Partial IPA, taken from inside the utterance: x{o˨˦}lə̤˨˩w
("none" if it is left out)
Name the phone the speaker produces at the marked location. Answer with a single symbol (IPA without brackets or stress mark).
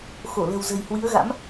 o˧˩